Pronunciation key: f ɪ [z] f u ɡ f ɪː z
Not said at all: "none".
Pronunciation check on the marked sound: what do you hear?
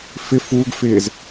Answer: none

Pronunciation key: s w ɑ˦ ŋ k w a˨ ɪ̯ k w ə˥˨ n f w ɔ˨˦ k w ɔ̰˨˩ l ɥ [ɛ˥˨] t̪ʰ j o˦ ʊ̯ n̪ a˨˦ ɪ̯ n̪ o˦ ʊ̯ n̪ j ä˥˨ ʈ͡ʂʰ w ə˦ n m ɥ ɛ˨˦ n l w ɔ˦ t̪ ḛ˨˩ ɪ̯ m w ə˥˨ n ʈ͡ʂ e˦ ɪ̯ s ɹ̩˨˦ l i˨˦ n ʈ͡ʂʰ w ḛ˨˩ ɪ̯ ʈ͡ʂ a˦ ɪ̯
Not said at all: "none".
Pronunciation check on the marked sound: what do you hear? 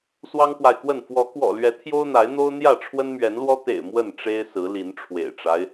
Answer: ɛ˨˦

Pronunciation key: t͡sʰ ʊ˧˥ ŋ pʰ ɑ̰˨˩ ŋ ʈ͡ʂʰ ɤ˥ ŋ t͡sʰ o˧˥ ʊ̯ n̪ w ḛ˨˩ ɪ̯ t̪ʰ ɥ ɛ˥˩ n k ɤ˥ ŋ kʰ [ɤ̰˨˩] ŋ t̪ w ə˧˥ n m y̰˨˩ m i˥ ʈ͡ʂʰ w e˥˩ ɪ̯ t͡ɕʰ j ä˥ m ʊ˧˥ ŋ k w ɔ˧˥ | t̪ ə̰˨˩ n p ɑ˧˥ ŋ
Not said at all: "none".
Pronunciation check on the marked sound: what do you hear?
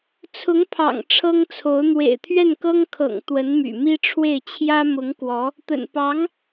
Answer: ɤ̰˨˩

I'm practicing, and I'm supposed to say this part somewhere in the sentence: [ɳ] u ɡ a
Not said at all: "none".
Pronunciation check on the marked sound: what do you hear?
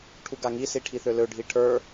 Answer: ʈʰ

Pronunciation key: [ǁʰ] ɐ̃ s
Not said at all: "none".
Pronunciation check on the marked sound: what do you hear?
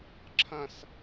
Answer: ǁʰ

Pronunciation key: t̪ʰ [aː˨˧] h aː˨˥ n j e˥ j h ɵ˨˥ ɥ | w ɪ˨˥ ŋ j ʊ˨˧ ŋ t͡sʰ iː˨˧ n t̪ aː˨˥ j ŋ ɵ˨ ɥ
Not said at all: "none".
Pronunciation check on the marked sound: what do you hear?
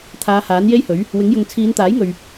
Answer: aː˨˧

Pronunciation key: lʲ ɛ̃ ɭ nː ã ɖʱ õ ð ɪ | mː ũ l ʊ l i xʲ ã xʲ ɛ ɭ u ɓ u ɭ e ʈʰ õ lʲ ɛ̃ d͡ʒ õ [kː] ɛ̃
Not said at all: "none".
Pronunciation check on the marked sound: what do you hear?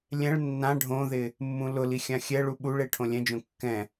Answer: kː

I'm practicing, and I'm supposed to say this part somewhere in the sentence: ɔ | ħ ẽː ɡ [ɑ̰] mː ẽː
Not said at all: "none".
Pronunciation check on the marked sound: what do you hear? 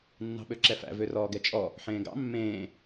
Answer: ɑ̰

